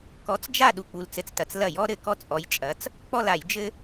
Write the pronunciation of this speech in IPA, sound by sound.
k ɔ˨˥ t͡s d͡ʒ a˦˨ ɗ u˩ k͡p u˩ l t͡s ɘ˩ t͡s t ɐ˩ t͡s l ɐ˧˩˧ j ɔ˦ ɾ ɘ˧˩˧ k ɔ˦ t͡sʼ ɔ˨˥ j t͡ʃʼ ɐ˨˥ t͡s | k͡p ɔ˦˨ l a˧˩˧ j d͡ʒ ɘ˦

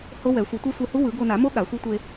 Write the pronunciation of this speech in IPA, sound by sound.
h o˦˥ w ɛ˨˩˦ sʷ ʌ˨˩˦ tʷ ɛ˦˥ sʷ e˧ h u˦˥ w ɯ˨˩˦ ɡ o˧ n a˨˩˦ m o˦˥ ɠ a˨˩˦ sʷ i˦˥ tʷ e˧

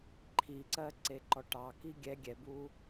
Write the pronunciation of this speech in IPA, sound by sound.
ǃʰ i ǀ ɜ ǀ e ǃ ɔ ʈ ɑ k i ɡʲ ɛ ɡʲ ɛ b u

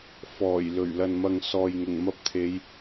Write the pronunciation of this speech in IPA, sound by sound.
f ɔː˨˩ j l ɵ˨˩ ɥ l ɐ˨ n m ɐ˨ ŋ s ɔː˨ j ŋ ʊ˨˩ ŋ m ɐ˧ p̚ t̪ʰ e˨˧ j

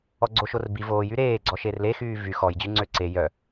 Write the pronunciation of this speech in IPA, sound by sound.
ɔ ɡ͡ǀ o ʃ o r b i v oː j y ɾ eː ɡ͡ǀ ɔ ʃ e r l e x yː v y x ɔ j d͡ʑ y ŋ͡ǀ ø ǀ e j œ

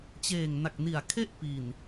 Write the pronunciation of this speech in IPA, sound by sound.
t͡ɕ eː˨˩ ŋ n a˨˩ k̚ n i˨˩ a̯ kʰ e˥˩ ʔ p i˨˩ n

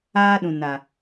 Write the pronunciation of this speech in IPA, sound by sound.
aː˦ ɗ ũ˨ n a˨

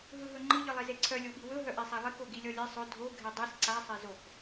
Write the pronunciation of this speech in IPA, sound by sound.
ɦ ɯ ɦ ɵ ŋ͡ǃ ɯ ʎ ɯ lˠ e z e ǀʰ œ lʲ o ɓ i w ɵ ɦ œ ʔ e sˤ a lˠ i k o ɡ i lʲ ɔ lʲ e sˤ ɵ dʱ o ɡʱ e dˤ ɯ s ǀ a sˤ e z o k

